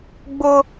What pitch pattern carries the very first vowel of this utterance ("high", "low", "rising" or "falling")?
high